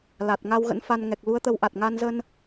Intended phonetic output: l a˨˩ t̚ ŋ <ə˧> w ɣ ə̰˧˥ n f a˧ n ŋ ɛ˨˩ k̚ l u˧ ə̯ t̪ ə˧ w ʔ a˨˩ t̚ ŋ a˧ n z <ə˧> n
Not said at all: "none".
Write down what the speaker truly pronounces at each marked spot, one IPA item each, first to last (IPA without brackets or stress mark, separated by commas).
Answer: a˧, ə˧